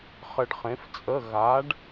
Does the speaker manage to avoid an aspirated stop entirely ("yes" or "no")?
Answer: yes